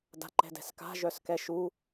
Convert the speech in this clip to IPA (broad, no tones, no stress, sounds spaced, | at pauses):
d a̤ ǃ ɛ̤ d ɛ̤ s k a̤ ʒ œ s k ɛ ʃ u